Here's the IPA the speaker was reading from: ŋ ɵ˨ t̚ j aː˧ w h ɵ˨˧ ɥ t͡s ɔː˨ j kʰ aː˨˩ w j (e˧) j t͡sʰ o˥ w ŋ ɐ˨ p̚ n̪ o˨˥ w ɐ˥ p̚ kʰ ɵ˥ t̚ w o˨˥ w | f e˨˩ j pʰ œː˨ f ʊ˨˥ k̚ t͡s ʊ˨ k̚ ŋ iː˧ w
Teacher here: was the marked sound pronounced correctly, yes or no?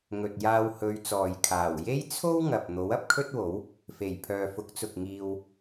no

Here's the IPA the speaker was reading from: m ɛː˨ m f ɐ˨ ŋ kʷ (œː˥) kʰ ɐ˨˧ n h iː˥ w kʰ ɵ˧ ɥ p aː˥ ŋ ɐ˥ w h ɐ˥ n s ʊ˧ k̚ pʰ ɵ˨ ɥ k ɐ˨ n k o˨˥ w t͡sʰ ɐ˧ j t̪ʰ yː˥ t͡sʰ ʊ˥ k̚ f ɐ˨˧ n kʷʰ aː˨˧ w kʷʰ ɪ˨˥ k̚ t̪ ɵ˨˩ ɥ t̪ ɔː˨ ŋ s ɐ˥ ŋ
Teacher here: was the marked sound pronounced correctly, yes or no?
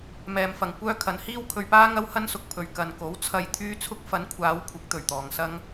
yes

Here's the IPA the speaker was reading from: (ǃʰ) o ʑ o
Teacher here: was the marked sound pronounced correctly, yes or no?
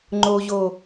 no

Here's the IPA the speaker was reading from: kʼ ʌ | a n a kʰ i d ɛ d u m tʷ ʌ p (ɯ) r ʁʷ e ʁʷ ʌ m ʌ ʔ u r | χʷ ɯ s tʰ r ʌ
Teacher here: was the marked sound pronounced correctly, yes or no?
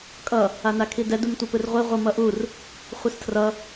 yes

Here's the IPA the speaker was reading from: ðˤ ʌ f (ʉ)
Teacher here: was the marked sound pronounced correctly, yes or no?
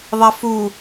no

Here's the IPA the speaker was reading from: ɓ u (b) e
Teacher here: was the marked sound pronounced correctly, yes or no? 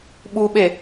no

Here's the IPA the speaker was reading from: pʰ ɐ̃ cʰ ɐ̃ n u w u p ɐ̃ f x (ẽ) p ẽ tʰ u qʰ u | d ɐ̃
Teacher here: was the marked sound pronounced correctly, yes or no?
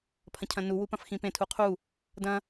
no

